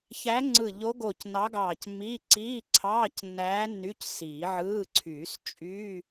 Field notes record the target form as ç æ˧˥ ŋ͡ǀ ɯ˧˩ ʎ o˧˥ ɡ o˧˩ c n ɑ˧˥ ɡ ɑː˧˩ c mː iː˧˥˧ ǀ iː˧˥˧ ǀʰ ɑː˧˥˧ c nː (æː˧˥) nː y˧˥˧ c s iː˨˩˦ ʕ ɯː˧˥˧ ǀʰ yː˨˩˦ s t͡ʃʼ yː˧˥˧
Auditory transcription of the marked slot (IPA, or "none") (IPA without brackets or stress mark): æː˧˥